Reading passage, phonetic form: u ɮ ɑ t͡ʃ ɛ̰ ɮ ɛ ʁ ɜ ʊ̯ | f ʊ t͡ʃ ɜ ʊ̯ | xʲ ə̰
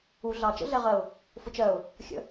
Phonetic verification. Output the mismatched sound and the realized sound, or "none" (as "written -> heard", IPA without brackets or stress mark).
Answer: ɛ̰ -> ə̰